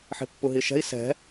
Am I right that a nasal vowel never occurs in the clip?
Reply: yes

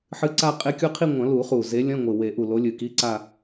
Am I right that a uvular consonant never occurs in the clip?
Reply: no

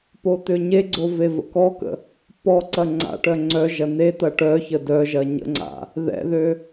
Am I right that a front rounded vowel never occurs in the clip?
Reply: no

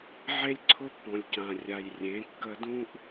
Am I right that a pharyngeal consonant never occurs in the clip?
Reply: no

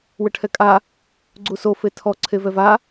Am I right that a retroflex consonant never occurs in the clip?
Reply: no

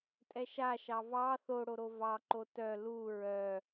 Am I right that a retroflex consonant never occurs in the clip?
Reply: no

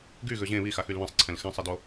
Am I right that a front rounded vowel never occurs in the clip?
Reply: no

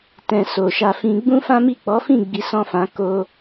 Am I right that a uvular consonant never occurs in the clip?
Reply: yes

